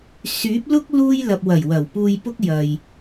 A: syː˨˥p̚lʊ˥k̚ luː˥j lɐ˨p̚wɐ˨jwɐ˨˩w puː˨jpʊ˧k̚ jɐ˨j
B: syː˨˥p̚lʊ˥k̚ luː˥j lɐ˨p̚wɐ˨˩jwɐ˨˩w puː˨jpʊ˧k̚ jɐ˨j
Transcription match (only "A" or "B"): B